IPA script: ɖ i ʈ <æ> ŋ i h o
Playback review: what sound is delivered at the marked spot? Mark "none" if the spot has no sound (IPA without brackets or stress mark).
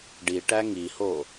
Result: æ